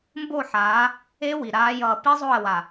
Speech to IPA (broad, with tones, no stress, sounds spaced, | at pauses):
m b o˦˨ ħ aː˨˦ | e˦ w i˨ ɾ aː˦ j ʌː˦˨ p i˦ zˤ o˦˨ ə̯ w a˨